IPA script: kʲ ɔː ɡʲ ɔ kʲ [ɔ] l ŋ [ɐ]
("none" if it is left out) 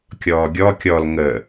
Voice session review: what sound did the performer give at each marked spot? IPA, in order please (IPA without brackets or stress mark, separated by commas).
ɔ, ə